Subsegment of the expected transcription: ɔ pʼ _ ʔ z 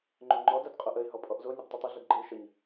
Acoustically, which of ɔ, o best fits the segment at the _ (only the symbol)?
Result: ɔ